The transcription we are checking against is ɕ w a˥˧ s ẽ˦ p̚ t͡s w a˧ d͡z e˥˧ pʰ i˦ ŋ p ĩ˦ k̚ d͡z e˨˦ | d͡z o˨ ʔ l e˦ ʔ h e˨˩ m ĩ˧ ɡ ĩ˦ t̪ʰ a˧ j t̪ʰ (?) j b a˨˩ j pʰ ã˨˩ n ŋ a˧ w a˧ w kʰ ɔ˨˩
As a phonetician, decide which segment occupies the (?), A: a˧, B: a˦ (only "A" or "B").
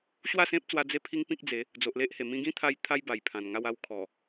B